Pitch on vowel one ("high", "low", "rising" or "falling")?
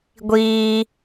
high